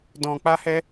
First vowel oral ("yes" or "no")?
no